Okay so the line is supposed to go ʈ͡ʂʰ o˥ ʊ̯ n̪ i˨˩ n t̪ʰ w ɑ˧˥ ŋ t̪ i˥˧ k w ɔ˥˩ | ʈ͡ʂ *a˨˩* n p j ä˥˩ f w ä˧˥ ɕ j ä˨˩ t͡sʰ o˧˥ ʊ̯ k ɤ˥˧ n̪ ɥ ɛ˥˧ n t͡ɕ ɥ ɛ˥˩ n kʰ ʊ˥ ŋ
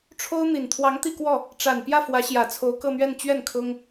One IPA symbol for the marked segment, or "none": a˨˩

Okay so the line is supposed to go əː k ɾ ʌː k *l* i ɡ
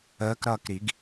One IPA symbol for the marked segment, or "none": ɾ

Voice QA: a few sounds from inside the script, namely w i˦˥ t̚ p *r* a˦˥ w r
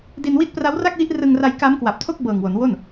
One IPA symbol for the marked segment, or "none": r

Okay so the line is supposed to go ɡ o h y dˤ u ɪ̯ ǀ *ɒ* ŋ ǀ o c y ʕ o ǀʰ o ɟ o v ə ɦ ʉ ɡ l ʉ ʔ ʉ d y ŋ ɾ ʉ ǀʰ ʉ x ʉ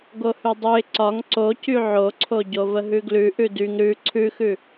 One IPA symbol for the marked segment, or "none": ɒ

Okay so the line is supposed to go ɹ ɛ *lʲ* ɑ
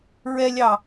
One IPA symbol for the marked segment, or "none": lʲ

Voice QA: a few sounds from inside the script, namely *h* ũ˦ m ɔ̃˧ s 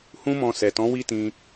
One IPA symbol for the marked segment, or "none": h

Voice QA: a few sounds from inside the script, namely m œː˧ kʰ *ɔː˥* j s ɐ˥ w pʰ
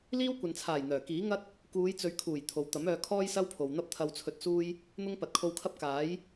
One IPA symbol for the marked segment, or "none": ɔː˥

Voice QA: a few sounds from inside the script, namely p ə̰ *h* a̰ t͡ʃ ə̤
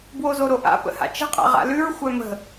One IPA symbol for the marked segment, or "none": h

